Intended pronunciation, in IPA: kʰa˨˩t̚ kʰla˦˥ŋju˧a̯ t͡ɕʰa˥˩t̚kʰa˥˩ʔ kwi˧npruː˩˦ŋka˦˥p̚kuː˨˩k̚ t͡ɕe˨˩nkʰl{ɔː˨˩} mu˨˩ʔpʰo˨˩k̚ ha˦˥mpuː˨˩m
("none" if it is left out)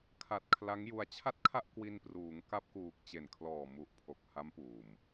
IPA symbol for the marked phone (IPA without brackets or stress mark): ɔː˨˩